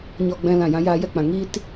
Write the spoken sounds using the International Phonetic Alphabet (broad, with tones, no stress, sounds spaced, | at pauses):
ɲ ɔ˧ ɡ͡b ɛ̃˧ l ã˦˨ j ã˦ j aː˦ j ɛ˦ k͡p ã˧ ŋ iː˦ t